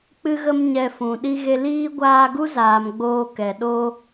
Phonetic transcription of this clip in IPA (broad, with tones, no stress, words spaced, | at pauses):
k͡pɨ˦ɣə˦m ɲɛ˧fũ˨ ɗi˧ɣe˧ liː˦ ɡʷaː˧ɡu˦zaː˨m ɡ͡boː˧kɛ˨ ɗo˧